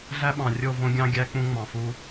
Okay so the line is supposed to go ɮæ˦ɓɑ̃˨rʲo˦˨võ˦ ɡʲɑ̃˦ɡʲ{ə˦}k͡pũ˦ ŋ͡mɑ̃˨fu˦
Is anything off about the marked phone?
yes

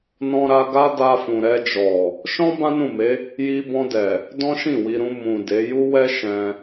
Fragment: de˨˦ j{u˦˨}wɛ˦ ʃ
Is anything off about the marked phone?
yes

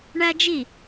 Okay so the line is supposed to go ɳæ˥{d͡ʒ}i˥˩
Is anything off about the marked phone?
no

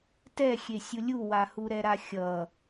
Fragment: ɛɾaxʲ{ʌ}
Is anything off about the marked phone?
no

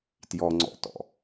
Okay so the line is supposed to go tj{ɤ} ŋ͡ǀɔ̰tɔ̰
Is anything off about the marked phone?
yes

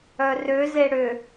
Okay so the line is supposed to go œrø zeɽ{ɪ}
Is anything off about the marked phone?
yes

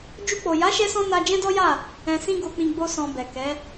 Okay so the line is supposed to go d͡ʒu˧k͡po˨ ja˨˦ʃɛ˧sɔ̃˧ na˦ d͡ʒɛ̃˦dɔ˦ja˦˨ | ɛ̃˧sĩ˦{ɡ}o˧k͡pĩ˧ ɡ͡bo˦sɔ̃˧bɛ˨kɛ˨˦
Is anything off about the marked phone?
no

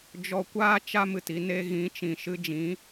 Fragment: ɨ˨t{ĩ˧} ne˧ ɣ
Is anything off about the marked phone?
yes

